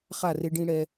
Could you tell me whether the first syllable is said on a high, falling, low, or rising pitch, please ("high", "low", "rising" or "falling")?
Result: falling